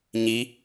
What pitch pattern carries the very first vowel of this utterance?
rising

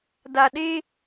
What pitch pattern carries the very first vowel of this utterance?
low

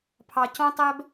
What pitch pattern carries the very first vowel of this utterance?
low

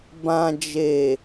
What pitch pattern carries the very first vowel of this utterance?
low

